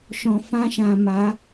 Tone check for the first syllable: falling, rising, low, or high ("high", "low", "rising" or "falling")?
low